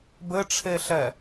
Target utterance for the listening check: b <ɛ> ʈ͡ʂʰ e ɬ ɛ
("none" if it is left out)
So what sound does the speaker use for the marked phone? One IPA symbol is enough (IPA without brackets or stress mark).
ɘ